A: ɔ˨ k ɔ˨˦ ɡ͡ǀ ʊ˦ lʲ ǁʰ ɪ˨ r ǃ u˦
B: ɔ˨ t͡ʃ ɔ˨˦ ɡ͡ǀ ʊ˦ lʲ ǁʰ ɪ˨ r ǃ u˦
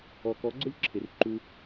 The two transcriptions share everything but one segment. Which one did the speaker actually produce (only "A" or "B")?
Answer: A